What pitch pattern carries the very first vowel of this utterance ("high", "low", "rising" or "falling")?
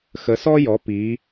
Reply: rising